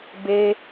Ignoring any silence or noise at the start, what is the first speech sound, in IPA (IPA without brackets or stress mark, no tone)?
b